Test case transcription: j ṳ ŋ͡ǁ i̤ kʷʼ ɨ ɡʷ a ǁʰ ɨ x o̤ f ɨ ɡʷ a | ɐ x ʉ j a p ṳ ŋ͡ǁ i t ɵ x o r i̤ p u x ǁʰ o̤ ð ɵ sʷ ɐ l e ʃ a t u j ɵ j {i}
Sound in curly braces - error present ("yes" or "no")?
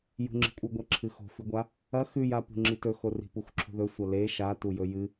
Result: yes